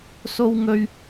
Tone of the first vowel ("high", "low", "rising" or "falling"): high